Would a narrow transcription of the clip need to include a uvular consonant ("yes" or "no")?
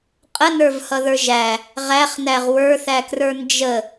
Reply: yes